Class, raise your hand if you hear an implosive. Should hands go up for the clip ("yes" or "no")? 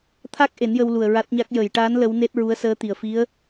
no